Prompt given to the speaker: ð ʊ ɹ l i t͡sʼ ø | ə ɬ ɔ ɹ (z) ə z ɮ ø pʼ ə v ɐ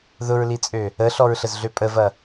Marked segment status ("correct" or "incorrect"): incorrect